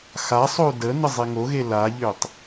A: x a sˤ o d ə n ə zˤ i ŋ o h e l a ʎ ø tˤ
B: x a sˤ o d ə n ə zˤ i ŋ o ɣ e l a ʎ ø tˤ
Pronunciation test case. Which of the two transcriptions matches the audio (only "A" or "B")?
B